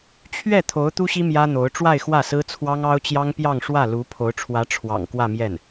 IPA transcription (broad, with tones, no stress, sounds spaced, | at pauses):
t͡ɕʰ ɥ ɛ˥˩ t̪ʰ o˧˥ ʊ̯ t̪ u˥ ɕ i˥ m j ä˥ n̪ o˧˥ ʊ̯ ʈ͡ʂ w a˥˧ ɪ̯ x w ä˥˩ s ɹ̩˥ t͡sʰ w ɑ˥ ŋ ɑ˥ ʊ̯ t͡ɕ j ɑ˥ ŋ p j ɑ˥˧ ŋ ʂ w ä˥˩ l u˧˥ pʰ o˧˥ ʊ̯ ʈ͡ʂʰ w ä˧˥ ʈ͡ʂʰ w ɑ̰˨˩ ŋ k w ä˥˧ m j ɛ˥˩ n